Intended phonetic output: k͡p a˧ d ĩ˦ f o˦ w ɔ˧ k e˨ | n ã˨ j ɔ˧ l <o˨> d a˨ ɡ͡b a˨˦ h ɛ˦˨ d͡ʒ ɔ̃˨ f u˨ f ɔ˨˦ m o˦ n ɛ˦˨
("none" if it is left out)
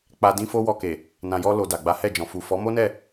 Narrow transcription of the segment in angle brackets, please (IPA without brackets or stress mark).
o˨